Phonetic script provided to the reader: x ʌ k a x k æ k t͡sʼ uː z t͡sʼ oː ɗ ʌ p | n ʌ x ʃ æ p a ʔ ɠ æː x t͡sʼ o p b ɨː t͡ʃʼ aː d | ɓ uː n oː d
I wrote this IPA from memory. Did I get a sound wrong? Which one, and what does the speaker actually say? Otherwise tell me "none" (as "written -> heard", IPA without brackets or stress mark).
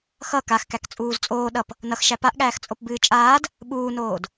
none